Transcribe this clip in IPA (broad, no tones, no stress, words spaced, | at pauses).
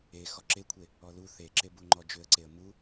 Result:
e xɔǁekʷʰe | ɔlu θeǁebuŋ͡ǃɔ d͡ʒʏə̯ǀeə̯ mu